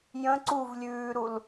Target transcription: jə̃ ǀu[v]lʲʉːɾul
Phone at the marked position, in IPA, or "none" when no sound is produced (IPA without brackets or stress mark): v